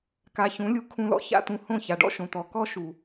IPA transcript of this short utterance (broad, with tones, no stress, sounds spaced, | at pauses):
k a˧ ç ũ˨˦ lʲ u˧ kʰ ũ˧ l ɔ̰˦ ç a̰˦ t̪ ũ˧ h õ˦˨ ç a˨ ɖ ɔ̰˦ ʃ õ˨ t̪ ɔ˨ k ɔ˦ ʃ u˨